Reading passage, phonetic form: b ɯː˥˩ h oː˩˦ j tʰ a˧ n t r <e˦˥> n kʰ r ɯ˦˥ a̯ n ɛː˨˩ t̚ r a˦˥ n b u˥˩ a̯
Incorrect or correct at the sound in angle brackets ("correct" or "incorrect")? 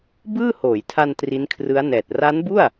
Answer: incorrect